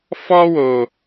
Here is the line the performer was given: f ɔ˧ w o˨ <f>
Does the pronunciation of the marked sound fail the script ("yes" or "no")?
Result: yes